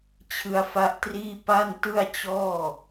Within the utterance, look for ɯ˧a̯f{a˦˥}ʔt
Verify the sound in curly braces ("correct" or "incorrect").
correct